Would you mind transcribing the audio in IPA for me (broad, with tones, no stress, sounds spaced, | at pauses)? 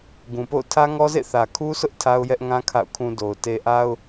ɡ ũ˨ p o̰˦˨ ʊ̯ tʰ ä˦ ŋ ɔ˦ z ḛ˦˨ θ ä˨ kʰ u˦ s ʊ˦ ʔ tʰ a˦ ʊ̯ j ɛ˦ ʔ ŋ ã˦ kʰ a̰˦˨ ʊ̯ kʰ ũ˦ d o˨ ʊ̯ t e˨ ʔ a˦ ʊ̯